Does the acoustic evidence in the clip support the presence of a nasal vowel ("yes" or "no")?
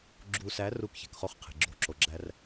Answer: no